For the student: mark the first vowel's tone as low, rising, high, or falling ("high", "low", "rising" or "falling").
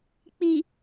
low